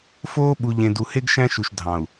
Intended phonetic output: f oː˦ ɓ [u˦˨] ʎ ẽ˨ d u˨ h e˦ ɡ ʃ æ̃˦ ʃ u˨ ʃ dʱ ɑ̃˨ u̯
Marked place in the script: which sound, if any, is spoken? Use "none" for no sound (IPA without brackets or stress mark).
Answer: u˨